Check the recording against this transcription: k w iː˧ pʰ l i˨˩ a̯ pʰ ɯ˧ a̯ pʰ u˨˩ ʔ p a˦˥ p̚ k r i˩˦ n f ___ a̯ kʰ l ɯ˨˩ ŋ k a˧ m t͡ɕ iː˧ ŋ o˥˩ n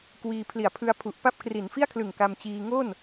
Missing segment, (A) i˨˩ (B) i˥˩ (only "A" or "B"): B